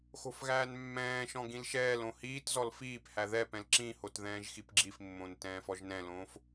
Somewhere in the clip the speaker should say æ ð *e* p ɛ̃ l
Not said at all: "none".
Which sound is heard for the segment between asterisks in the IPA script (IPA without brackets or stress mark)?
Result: ɛ